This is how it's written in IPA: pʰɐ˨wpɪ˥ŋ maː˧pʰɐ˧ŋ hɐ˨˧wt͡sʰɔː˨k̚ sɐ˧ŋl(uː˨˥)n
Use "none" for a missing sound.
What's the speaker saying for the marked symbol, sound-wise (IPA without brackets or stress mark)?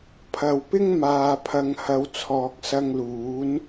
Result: uː˨˥